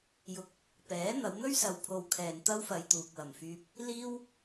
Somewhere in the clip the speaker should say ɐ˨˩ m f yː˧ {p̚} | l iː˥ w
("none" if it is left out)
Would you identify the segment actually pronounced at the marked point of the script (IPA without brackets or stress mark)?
p̚